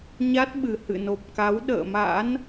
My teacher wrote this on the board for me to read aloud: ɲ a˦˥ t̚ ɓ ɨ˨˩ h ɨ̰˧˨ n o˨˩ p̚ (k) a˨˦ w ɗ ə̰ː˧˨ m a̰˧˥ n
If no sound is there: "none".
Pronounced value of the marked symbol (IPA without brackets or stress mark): k